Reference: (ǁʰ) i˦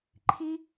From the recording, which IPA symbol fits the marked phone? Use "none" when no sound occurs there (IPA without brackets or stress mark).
ǃʰ